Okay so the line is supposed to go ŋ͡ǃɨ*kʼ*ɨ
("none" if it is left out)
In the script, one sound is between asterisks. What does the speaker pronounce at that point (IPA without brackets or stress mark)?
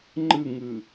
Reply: ŋ